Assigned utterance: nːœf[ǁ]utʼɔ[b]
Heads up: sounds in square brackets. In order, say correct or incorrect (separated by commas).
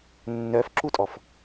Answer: correct, incorrect